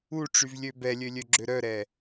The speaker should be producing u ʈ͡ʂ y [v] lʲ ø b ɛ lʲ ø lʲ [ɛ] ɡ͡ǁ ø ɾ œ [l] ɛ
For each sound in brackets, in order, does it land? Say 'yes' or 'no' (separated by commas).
yes, no, no